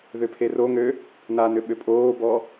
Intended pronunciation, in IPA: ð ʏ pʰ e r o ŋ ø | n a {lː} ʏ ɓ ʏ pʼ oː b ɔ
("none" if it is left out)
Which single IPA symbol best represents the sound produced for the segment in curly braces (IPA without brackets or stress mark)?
n